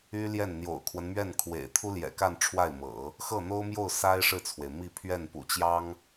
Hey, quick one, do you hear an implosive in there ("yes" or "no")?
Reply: no